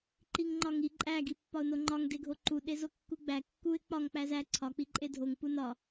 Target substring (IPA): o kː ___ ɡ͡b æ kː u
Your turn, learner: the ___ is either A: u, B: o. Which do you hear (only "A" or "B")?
A